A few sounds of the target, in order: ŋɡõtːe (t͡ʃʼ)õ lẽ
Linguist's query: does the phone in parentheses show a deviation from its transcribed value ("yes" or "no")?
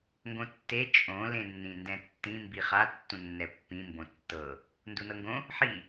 no